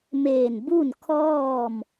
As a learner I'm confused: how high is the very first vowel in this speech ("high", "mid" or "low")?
mid